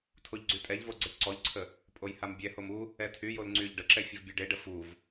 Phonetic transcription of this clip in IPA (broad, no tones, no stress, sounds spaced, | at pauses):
tʰ o ʎ ɡ͡ǀ y tʼ ɛ ʎ v o ɡ͡ǀ ə ʈ ǀ ɔ ʎ ǀʰ ə | pʼ o j h a m bʲ ɛ h o m u | ɛ tʰ y j o l ŋ͡ǀ y ʎ ɖ ə ǁ ɛ fʲ ə v bʲ ø ɖ e ɖ ə f u v